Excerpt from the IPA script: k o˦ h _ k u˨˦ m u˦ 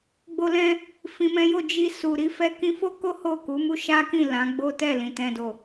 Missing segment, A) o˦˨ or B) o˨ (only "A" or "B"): A